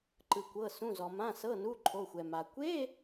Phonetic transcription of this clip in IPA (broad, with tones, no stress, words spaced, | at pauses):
ǃɯ˩kʷɤ˩˧˩sũ˩˧˩zɔ˩ mã˩˧˩sɤ˩˧˩nu˩˧˩ ǃʰo˩˧˩xʷɛ˩ ma˩ kʷe˧˥˧